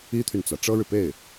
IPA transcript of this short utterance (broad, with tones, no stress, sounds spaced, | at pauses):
i˥ t̪ʰ y˨ n t͡s ä˩ ʈ͡ʂ ɤ˥ ɻ ɻ̩˨ p e˥˩ ɪ̯